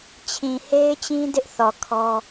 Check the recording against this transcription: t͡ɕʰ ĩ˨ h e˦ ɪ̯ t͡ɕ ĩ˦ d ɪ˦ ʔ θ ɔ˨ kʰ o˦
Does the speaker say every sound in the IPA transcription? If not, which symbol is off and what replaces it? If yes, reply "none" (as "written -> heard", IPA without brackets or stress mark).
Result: o˦ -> ɔ˦